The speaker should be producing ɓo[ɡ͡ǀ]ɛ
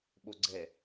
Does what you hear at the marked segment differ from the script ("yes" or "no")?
no